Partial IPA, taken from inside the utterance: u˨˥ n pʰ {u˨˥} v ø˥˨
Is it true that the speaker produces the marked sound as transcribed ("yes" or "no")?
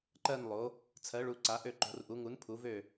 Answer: yes